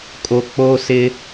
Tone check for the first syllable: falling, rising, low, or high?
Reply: low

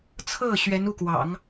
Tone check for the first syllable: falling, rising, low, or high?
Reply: falling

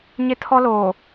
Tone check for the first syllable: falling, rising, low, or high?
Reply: high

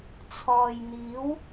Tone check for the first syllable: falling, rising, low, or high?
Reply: low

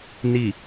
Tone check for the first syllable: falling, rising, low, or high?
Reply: low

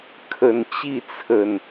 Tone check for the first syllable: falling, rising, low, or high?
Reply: low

